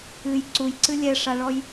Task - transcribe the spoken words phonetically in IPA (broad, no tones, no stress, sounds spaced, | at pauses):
ɨ j ǀ u j ǀ ɨ lʲ ɛ ʂ a ɭ ɔ j